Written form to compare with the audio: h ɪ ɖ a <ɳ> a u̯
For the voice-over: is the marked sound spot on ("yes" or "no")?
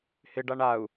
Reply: yes